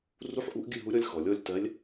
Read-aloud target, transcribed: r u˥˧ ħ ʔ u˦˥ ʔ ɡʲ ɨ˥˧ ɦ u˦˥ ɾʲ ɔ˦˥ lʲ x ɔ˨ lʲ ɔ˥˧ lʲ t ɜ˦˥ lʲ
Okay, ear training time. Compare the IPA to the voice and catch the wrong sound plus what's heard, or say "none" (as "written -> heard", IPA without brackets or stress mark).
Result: none